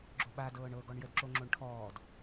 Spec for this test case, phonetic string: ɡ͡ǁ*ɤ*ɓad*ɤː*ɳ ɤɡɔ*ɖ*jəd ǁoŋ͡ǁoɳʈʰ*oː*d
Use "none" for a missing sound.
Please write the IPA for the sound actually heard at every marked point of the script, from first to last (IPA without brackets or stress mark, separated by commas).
o, ɤː, ɳ, ɔː